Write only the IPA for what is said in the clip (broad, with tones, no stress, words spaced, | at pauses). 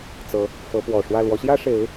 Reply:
t͡sɤ˨˦ | fɤ˨˦pwɔ˨˩ʂwä˥˨ lwɔ˨˦ɕjä˦ʂe˨˦ɪ̯